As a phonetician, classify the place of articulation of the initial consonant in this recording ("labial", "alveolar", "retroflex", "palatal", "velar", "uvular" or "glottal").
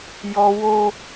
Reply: palatal